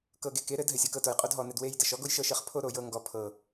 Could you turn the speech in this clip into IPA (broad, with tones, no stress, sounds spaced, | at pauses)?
k ɤ˧ ɡ e˧ k e˨˦ ɾ ɘ˨˦ d ɦ ɘ˨ sʲ ɤ˨ k ɤ˧ t o˨ j qʼ o˦ d ɦ ɔ˧ n ɘ˧ d w e˧ j d ɘ˨ ʃ ɔ˦ ɡ o˦ j ʃ ɤ˦˨ ʃ ɘ˨ χ pʰ o˧ ɾ o˨ j ɤ˧ ŋ ɡ ɔ˨ pʰ ɤ˨